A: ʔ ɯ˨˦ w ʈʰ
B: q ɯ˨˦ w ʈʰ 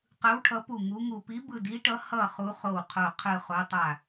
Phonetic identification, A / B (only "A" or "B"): B